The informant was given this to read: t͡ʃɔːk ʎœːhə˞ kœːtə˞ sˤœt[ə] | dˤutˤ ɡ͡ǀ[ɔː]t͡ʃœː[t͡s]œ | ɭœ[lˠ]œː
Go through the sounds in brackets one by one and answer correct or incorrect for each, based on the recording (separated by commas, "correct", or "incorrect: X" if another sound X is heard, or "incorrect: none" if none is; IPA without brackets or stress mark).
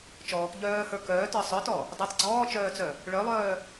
incorrect: ɔ, correct, correct, correct